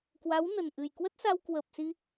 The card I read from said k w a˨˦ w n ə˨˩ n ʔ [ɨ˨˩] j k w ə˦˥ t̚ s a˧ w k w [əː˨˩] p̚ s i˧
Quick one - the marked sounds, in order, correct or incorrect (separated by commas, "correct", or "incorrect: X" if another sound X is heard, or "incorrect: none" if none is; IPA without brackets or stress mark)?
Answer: correct, incorrect: ə˨˩